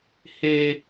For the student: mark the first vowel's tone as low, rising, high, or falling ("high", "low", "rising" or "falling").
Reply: high